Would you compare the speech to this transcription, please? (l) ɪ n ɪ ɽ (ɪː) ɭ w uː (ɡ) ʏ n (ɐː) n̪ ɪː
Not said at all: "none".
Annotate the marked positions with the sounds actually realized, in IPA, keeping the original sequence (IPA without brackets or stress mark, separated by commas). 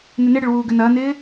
n, ɪ, ɡ, ɐː